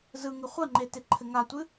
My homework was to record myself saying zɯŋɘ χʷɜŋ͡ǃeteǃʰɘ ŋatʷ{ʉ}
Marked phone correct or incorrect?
incorrect